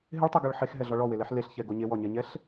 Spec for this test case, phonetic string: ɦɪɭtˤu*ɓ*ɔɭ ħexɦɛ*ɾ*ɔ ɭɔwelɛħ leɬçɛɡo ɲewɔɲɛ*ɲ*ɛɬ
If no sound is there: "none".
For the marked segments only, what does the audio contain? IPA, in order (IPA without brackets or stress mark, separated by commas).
ɡ, ɮ, ɲ